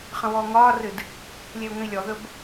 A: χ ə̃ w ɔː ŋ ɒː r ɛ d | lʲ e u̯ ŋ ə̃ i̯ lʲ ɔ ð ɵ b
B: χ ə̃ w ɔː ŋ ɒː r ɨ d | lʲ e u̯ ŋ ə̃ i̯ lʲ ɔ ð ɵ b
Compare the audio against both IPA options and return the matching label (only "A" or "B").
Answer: B